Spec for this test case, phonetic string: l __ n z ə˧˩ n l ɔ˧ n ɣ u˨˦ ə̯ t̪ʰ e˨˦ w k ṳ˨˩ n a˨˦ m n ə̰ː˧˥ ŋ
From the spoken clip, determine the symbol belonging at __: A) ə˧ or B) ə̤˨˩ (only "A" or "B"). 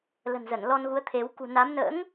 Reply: B